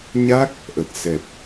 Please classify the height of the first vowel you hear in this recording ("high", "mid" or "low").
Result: low